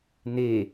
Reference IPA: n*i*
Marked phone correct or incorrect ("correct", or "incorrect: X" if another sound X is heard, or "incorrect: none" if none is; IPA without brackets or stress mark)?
incorrect: e